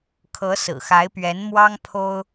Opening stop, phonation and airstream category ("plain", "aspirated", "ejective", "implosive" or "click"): aspirated